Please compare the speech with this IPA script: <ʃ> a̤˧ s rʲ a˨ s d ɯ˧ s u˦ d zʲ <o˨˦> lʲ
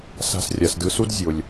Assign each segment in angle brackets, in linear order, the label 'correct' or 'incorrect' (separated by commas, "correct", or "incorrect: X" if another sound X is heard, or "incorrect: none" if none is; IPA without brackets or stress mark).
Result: incorrect: s, incorrect: o˨